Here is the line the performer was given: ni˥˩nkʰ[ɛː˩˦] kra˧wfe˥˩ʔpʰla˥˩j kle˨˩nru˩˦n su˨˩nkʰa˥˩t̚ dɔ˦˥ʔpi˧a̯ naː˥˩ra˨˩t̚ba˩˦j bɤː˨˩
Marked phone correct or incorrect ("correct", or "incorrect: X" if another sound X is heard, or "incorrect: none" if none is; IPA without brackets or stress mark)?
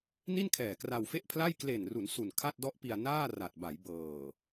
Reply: incorrect: ɛː˨˩